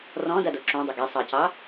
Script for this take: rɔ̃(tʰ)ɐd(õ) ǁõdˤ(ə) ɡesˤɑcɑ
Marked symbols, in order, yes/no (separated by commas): no, no, yes